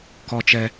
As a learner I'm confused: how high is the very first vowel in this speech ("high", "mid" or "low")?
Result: mid